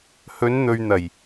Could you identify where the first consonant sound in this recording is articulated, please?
glottal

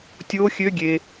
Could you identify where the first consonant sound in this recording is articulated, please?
alveolar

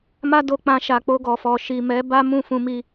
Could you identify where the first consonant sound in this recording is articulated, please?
labial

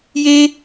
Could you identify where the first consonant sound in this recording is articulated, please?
palatal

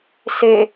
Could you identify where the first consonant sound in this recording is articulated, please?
alveolar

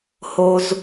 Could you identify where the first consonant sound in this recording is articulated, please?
glottal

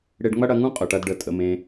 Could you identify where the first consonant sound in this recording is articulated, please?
retroflex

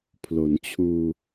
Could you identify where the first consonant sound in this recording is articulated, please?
labial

